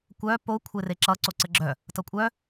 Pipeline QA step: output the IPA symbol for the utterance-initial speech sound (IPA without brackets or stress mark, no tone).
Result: kʷ